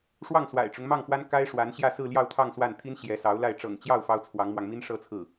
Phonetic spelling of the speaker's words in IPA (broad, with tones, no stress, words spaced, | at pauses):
ʂwɑ˥˩ŋswa̰˨˩ɪ̯ʈ͡ʂʊ˦ŋmɑ˥˩ŋ fwa˥nka˥ɪ̯ʂwa˧˥nɕjä˥˧ sɹ̩˥˧ljɑ˥˧ʊ̯t̪ʰɑ˥˧ŋ swa˥˩n t̪ʰi˥nɕjɛ˧˥sɑ˧˥ʊ̯ la˥˩ɪ̯ ʈ͡ʂɤ̰˨˩ŋt͡ɕjɑ˥˩ʊ̯ fɑ˥ʊ̯t͡sʰwɑ˧˥ŋmwɑ˧ŋ mi˥nʂɤ˥t͡sʰɹ̩˥˩